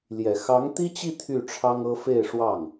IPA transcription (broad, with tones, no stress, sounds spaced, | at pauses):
l j ɛ˨˩ x ɑ˧˥ ŋ t̪ i˥ t͡ɕ i˥˧ t̪ʰ y˥˩ ʈ͡ʂʰ ɑ˥ ŋ ɤ˥ f e˥˧ ɪ̯ ʂ w ɑ˥˩ ŋ